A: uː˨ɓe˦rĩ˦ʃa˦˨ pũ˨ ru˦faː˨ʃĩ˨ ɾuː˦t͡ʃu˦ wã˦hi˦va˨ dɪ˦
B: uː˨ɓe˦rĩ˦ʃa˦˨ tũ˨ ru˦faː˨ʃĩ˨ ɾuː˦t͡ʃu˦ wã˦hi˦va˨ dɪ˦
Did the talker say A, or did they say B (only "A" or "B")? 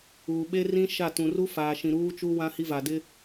B